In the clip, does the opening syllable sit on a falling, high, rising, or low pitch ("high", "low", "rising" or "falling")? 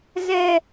high